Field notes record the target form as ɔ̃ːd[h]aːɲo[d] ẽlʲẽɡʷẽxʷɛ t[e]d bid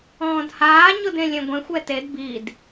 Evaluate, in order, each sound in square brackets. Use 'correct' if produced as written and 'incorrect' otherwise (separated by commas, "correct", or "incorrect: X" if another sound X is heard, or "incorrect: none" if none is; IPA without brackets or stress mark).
correct, correct, correct